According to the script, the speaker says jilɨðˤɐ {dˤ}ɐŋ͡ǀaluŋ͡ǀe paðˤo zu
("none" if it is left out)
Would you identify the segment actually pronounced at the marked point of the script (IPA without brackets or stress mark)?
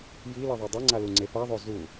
dˤ